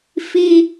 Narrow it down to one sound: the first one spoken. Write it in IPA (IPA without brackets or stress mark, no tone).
f